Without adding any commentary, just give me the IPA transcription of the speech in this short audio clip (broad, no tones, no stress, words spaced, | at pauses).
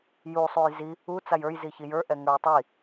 ju sˤujzi | u t͡sajə˞jzi çijə˞ʔɛ ŋə˞jtˤi